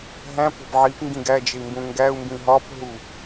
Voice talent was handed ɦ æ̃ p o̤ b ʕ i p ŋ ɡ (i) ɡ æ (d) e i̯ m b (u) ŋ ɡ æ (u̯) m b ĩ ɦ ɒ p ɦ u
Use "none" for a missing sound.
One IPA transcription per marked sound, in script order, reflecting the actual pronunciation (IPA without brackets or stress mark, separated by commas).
ĩ, d͡ʒ, ũ, u̯